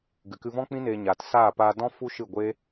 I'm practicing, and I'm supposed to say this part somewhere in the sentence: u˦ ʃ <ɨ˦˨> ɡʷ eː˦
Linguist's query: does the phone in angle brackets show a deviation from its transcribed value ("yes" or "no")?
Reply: no